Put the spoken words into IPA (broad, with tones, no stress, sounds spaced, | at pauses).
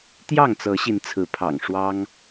t̪ j ɑ˥˨ ŋ t͡s ɤ˨˦ ɕ i˨˦ n t͡sʰ ɹ̩˨˦ pʰ ɑ̰˨˩ ŋ ʂ w ɑ˦ ŋ